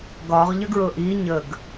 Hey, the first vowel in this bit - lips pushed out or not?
yes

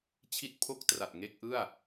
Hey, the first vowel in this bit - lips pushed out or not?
no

